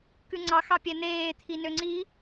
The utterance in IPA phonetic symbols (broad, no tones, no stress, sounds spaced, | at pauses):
k ʉ ŋ͡ǀ ɑ x ɑ pʲ æ n̪ eː t̪ʰ i n ø ŋ͡ǀ i